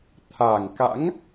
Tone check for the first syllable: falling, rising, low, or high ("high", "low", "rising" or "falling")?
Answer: low